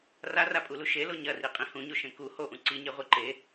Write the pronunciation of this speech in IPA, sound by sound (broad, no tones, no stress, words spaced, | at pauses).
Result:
rarapʼulu ʃelo ɲɐriqʼĩ hũɲoʃẽ ku hoʔũ ǀiɲeʁʷi ǃe